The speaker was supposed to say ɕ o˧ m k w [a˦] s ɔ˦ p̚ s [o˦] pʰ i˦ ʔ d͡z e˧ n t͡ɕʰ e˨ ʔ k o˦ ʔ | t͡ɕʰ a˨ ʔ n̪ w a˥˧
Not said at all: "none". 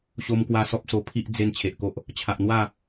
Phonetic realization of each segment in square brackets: a˧, o˧

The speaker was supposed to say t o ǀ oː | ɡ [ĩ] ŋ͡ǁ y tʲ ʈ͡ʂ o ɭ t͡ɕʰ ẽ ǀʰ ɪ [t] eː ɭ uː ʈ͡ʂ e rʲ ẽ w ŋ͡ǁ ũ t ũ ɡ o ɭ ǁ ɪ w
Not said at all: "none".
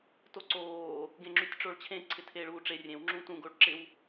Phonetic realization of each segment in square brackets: ẽ, tʰ

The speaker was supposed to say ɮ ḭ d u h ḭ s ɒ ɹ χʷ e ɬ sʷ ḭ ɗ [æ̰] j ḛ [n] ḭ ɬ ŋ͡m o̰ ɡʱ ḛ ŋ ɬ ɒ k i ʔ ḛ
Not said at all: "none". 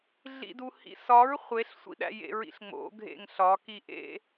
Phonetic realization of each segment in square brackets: æ̰, ɹ

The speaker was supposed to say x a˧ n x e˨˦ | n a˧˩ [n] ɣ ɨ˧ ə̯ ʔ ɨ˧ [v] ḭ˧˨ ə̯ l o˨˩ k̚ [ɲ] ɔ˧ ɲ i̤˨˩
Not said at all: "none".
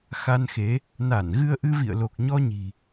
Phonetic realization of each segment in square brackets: n, v, ɲ

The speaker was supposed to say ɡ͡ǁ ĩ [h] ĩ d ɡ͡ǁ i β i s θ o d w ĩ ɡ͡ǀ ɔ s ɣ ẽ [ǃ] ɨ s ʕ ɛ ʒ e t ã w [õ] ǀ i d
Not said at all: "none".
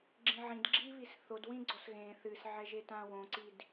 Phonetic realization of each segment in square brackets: ʕ, θ, õ

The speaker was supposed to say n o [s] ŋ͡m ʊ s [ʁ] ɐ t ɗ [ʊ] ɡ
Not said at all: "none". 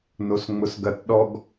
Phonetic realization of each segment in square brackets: s, ɡ, ɔ

